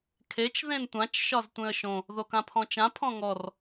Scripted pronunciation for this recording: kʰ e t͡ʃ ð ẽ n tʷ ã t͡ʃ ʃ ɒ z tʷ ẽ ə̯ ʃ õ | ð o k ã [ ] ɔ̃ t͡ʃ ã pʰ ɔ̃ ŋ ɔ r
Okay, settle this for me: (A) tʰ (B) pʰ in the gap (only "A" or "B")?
B